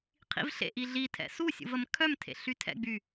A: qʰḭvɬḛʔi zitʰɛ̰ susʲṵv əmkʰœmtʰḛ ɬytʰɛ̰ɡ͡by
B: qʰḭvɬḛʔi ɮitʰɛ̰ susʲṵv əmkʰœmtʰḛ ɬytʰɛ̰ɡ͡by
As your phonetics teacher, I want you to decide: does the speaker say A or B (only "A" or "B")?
B